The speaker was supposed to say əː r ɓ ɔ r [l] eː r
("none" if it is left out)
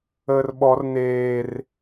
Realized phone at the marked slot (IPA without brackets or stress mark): n